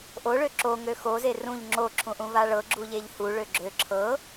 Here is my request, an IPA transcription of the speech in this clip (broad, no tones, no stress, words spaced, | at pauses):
ʔoɭø ǁoŋø xoze rũʎ ŋ͡ǁoǁʰũʔũva ɭɤɡ͡ǁuʎeʎ huɭø ɡ͡ǁø ǁʰɤ